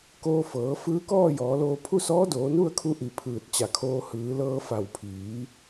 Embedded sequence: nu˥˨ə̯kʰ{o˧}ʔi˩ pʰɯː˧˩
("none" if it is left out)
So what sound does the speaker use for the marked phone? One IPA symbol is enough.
u˧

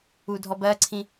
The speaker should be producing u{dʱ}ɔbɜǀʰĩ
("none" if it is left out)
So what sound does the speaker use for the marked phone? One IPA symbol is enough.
dʱ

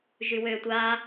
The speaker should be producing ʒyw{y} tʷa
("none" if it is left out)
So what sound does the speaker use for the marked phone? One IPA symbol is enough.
ø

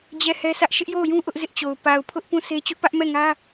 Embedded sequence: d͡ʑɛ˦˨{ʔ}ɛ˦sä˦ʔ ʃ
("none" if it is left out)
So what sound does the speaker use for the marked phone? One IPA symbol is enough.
h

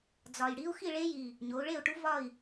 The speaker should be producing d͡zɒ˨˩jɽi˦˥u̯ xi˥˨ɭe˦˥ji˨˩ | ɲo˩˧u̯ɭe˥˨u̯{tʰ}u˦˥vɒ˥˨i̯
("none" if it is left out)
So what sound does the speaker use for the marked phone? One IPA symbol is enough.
ʈ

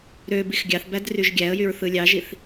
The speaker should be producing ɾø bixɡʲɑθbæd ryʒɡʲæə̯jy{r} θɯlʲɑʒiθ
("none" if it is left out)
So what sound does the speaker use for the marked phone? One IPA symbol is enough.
ɹ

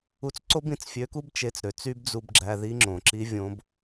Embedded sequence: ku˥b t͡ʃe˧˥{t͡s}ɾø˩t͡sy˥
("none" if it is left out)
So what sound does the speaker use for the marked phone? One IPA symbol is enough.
t͡s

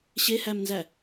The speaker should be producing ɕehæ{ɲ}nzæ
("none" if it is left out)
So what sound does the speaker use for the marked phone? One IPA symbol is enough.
m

